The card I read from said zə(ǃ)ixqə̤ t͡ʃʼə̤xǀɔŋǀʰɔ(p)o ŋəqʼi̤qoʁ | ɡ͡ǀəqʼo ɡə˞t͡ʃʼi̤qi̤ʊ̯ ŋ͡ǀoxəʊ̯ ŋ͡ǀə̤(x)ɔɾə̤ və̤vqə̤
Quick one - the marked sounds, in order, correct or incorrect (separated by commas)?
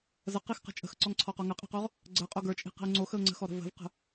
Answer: incorrect, incorrect, correct